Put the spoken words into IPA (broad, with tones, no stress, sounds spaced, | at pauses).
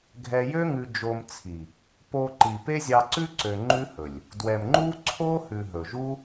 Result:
ɡʱ ɛ˧ j ø˦ ŋ ʉ˧ d͡ʒ o˧ m t͡sʰ i˨ | p o˧ ǃ i˨ p e˦ zʲ ɑ˧ ǀ ʉ˦ ǀ ø˨ ŋ͡ǃ ʉ˦ h ɵ˨ lʲ | d w ɛ˨ m ŋ͡ǃ u˦ ǀʰ o˦ h ʉ˨ ɦ ɵ˨ ʒ u˦